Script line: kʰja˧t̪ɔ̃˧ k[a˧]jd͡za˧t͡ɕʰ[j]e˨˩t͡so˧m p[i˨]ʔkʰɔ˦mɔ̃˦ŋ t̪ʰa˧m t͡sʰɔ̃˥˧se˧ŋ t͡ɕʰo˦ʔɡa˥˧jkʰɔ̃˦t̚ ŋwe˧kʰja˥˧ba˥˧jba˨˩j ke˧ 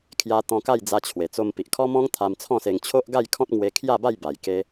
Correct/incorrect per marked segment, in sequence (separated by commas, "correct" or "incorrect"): incorrect, incorrect, correct